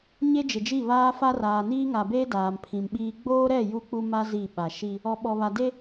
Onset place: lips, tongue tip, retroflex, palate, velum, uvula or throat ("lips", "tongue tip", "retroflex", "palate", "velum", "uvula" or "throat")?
palate